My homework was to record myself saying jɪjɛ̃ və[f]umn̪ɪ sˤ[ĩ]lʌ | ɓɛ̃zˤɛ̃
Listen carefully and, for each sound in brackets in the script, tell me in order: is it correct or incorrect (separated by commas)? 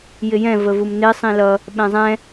incorrect, correct